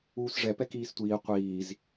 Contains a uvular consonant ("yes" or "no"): yes